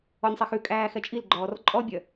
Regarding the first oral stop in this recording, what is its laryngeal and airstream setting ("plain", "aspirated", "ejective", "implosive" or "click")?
ejective